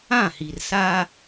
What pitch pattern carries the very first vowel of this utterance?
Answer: falling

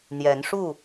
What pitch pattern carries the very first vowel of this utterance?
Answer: rising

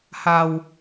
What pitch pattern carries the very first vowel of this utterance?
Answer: low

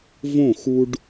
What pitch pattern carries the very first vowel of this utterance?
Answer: falling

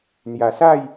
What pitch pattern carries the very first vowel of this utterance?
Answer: low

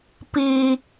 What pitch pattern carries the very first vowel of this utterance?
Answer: high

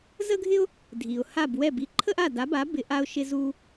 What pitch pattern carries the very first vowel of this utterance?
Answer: high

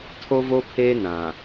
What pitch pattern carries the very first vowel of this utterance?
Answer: high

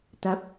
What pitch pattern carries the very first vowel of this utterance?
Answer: rising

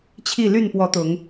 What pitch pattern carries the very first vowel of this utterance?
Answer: falling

